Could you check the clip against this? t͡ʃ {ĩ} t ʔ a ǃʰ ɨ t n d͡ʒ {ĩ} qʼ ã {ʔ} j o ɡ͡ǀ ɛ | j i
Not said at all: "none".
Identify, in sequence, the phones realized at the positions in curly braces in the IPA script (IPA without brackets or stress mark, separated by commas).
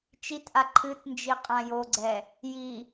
i, i, none